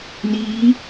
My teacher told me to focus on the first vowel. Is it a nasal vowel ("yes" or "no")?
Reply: no